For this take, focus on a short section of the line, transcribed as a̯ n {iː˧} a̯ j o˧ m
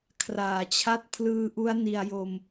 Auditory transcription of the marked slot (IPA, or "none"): i˧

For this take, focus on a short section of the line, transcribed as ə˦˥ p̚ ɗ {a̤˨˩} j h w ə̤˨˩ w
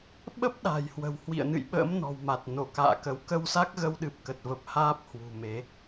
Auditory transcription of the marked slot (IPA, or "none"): a̤˨˩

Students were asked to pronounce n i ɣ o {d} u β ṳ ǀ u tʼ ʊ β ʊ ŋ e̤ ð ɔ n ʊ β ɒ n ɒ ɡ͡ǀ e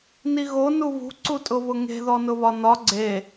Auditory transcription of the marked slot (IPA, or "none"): n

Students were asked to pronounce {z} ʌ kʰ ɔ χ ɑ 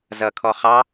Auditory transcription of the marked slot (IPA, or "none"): z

